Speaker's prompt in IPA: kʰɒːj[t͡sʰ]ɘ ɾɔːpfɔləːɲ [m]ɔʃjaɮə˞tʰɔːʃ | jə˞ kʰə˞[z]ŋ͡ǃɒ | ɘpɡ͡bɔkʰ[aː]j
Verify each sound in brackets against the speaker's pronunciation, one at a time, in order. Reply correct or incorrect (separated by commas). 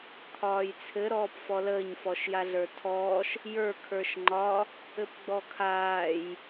correct, incorrect, incorrect, correct